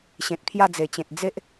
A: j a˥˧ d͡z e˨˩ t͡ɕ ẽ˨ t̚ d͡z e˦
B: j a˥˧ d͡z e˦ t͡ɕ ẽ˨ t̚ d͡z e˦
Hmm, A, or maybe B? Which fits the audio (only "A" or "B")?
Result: A